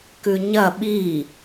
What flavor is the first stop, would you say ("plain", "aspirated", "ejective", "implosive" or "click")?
plain